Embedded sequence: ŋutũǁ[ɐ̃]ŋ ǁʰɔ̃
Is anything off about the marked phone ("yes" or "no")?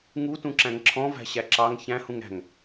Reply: yes